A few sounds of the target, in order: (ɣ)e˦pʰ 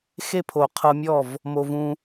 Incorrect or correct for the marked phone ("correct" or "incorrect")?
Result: incorrect